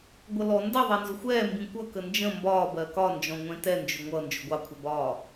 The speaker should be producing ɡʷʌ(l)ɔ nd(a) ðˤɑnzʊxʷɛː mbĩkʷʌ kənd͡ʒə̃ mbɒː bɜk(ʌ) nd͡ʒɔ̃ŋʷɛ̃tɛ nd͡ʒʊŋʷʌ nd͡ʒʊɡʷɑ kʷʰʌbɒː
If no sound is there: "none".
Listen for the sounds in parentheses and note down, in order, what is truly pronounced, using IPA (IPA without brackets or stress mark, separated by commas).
l, ʌ, ɒ